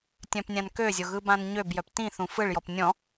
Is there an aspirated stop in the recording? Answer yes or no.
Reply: no